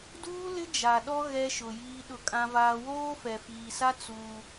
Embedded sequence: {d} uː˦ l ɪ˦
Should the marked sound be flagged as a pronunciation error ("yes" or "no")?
no